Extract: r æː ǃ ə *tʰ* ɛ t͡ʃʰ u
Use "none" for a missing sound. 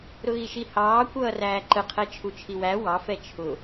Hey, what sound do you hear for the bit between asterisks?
qʰ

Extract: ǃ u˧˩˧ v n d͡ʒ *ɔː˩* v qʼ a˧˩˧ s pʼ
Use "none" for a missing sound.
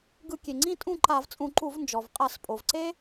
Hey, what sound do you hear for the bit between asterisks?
ɔ˩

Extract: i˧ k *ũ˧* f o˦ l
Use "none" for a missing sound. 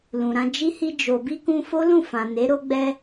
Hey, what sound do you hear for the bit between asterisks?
ũ˧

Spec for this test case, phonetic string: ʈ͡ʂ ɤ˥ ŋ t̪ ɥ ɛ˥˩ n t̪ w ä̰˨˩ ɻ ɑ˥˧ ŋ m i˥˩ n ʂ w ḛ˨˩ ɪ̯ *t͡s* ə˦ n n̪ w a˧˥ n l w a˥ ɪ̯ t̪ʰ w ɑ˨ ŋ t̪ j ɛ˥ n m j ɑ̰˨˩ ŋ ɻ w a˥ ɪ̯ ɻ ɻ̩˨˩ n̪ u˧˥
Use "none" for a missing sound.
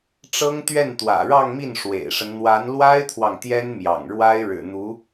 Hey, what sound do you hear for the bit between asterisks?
ʂ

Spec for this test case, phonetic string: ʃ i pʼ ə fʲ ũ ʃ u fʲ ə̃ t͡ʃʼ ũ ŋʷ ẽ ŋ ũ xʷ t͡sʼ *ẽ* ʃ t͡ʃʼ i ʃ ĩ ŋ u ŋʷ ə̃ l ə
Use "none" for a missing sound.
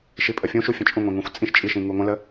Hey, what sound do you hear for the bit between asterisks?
ĩ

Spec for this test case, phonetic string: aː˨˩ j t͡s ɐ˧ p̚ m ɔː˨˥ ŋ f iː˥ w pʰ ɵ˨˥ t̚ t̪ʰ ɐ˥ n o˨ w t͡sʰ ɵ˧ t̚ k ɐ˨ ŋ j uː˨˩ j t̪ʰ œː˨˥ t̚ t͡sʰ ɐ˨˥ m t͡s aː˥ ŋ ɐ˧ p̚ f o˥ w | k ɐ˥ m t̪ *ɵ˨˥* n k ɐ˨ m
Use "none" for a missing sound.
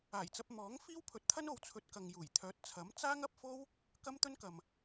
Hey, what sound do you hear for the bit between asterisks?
ɵ˥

